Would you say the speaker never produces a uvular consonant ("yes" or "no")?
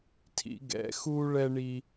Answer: yes